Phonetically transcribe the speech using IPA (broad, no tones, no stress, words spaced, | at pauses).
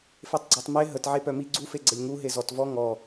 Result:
fetˤɡ͡ǀɔtˤme ɦətʕe pœmi ɡ͡ǀufe ɡ͡ǀəlʲŋu ɦezɔtvɔ ŋɔ